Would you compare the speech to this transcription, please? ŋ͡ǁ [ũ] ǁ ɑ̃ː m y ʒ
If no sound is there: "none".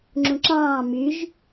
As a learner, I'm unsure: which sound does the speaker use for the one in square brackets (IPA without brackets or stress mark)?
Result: ũ